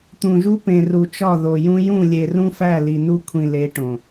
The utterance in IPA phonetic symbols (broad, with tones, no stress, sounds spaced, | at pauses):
t̪ ũ˨ ʒ u˦ p ẽ˨ r u˨ t͡ʃ ɒ˦˨ ð o˨ j ũ˦ j ũ˦˨ lʲ e˨ r ũ˦ f æ˦˨ l i˨ n u˦ kʷʰ ĩ˨ l e˨˦ ʈ õ˨